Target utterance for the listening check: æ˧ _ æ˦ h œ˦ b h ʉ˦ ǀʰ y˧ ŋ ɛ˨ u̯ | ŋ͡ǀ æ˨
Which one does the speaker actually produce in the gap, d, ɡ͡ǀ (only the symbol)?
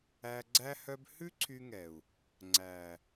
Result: ɡ͡ǀ